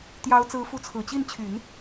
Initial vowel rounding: unrounded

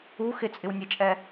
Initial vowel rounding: rounded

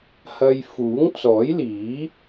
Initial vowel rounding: unrounded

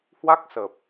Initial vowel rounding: unrounded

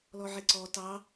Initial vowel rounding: rounded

